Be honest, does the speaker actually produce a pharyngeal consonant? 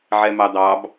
yes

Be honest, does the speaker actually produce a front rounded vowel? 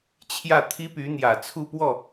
yes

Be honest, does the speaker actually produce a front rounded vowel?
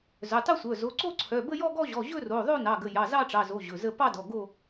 yes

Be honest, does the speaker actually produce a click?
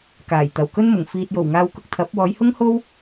no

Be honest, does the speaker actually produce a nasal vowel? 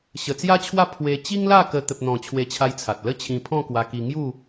yes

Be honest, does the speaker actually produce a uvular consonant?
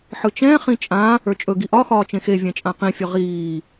yes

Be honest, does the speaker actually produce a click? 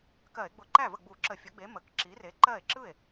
yes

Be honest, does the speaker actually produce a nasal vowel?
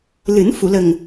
no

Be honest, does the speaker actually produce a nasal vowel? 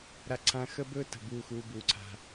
yes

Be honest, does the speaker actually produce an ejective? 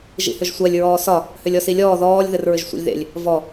no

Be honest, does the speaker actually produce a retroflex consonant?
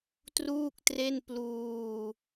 no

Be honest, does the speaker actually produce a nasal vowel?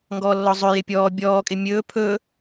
no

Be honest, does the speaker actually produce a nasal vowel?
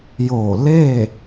no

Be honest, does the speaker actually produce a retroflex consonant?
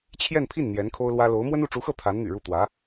yes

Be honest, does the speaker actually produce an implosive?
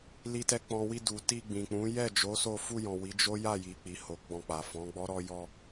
no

